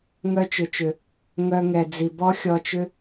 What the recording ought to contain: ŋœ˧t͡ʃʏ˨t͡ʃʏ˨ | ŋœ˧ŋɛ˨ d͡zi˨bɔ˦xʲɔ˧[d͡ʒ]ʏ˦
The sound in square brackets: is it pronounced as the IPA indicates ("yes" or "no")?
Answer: no